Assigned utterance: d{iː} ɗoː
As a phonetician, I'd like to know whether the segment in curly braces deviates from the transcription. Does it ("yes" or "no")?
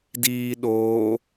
no